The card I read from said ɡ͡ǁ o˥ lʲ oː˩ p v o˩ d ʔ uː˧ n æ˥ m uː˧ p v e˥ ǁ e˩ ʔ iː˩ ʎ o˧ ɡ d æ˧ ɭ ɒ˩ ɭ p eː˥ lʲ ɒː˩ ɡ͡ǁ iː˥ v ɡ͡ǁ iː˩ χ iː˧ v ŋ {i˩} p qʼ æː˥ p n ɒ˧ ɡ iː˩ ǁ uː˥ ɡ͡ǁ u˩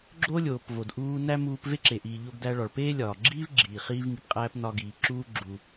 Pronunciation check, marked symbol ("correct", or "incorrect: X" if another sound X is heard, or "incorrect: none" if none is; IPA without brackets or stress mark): correct